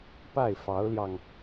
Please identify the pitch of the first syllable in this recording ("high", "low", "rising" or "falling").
falling